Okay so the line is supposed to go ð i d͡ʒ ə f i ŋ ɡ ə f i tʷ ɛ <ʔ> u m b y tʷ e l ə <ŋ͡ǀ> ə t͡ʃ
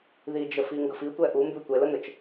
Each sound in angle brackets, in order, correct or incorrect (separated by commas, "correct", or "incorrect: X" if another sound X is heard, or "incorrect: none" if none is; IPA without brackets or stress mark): correct, incorrect: n